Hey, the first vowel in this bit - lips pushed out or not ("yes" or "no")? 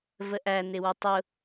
no